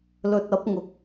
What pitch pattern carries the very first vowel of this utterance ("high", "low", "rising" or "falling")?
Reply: low